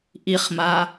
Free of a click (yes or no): yes